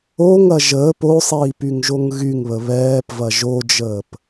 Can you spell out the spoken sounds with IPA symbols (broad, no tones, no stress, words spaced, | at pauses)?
oŋɐ ʒəːp osˤiːpyŋʒoŋ ɣyŋβə βɛːpvɐ ʒod͡ʒəːp